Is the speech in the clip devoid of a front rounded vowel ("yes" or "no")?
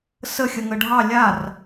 yes